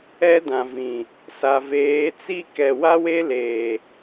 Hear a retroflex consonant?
no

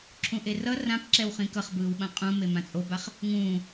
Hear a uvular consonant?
yes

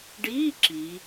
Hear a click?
yes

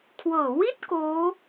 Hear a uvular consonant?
no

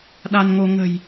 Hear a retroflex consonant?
no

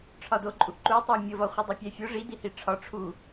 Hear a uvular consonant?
yes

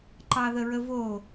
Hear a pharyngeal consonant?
no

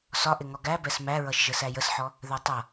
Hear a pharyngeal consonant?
yes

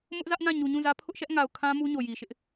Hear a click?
no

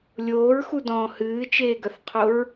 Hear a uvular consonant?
yes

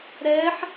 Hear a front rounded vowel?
no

